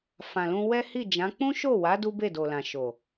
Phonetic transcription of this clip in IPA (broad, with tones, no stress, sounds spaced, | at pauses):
f ã˨ l ũ˧ w ɛ˦ h i˦˨ d͡ʒ ã˨˦ k͡p ũ˦ ʃ o˦˨ w a˨˦ d u˦ b e˦˨ d o˨ l ã˨ ʃ o˨